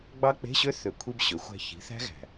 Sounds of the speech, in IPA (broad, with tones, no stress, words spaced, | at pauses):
ɡ͡bɑ˦˥k͡pe̤˧˥˧ɕø˦˥ θø˨˩kʷʰi˧b ɕø˩˥xʷæ̤˥˧ çi̤˩˥θæ̤˦˥ɣæ̤˨˩